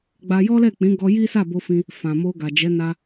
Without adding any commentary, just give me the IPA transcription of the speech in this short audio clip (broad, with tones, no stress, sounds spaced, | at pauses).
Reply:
ɡ͡b a˧ j ɔ˦ l ɛ˦˨ k͡p ĩ˨˦ ɡ ɔ˧ j i˦ s a˦˨ b o˧ f ĩ˧ | f ã˨ m o˧ ɡ a˨ d͡ʒ ɛ˨˦ n a˧